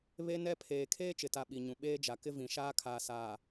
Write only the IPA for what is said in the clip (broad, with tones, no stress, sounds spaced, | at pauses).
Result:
β e˦ n ɛ˦ pʰ eː˨ kʰ eː˦ t͡ʃ ɪ˨ t a˨ ɓ i˨ ɲ ũ˨ ɓ eː˦ d͡ʒ a˨ k ɪ˦ v ĩ˨ ʃ aː˦ kʰ aː˨ s aː˨